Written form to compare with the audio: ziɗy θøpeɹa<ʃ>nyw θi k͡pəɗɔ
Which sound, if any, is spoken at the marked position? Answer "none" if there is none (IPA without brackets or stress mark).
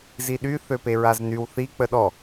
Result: z